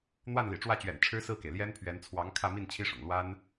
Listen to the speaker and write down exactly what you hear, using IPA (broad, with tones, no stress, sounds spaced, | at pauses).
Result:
n̪ w a˥˩ n l ḭ˨˩ ʈ͡ʂ w ä˥˩ t͡ɕ ɥ ɛ̰˨˩ n ʈ͡ʂʰ ɻ̩˥ s ɹ̩˥˩ k e˩ ɪ̯ l j ɛ˥ n pʰ ɥ ɛ˧˥ n t͡sʰ w ɑ˧˥ ŋ kʰ ä˥˧ m i˥˩ n t͡ɕʰ i˥ ʂ ʊ̰˨˩ ŋ l w a˥ n